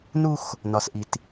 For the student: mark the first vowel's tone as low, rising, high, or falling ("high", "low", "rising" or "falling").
high